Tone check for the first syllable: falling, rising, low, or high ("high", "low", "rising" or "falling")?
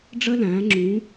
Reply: high